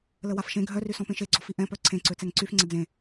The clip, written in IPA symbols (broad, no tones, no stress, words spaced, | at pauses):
ləwafʃẽ ɡʱœrysɔ̃ pẽʃeɡ͡ǀɔfi ʔɛ̃pœ ǀʰẽǀø t͡sɛŋǀyf ŋ͡ǀəd͡zẽ